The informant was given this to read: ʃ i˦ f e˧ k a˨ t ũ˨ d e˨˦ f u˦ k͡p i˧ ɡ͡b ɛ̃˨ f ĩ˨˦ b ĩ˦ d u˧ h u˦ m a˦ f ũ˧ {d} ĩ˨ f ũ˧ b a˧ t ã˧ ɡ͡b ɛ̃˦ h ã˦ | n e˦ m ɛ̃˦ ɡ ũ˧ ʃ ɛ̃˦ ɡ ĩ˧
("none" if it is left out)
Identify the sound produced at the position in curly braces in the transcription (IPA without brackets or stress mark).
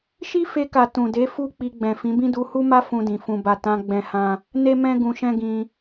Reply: d